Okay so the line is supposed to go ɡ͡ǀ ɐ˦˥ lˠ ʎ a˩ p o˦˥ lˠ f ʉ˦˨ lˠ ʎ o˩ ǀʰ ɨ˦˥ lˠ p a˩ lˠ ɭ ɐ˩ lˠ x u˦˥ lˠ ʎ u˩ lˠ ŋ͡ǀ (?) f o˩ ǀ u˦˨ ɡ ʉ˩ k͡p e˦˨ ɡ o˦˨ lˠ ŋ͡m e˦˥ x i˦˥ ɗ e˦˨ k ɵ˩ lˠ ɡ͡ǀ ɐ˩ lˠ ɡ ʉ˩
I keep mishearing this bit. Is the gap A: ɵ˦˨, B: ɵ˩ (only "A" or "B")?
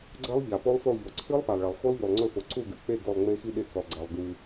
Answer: A